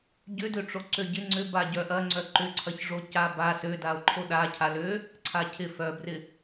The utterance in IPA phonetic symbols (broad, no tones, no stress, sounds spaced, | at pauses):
ɟ ʏ d ø ʈ͡ʂ o ǀ ø ɟ ɪ ŋ͡ǀ ʏ b a ɟ œ ʔ ɐ ŋ͡ǀ œ ǃ ʏ ǀʰ ɐ ç ʐ o c a b a s ø d a o̯ ǃʰ o ɗ a cʰ a l ø | ǀʰ a cʰ ɪ f œ b r ɪ